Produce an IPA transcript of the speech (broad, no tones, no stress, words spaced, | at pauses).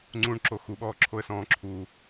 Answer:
ŋ͡ǀũɳǁo xuɓɔːǁʰoə̯sɔ̃ː ǁʰu